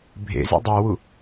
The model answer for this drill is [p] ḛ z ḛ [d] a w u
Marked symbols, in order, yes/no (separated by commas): no, no